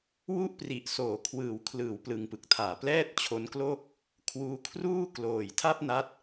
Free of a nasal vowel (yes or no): yes